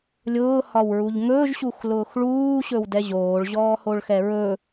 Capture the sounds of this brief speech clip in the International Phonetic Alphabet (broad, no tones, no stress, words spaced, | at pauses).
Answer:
lʲʊːhɒwɹuʎ ŋɵːʒɕuxlʊːx ɭuːɕɵwdɛ ʑoːɭʑɔːhoɭxɛ ɹɵ